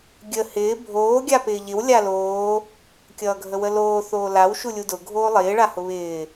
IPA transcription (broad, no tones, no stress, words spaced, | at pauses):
ɡʲə hɪː bʱoː ɡʲapɪːʎɪw lʲaloː | kʲʌːɡʱəwəloː θoːlaw ʃulʲudʊ ɡʱoːlˠɪː ɭahʊβɪː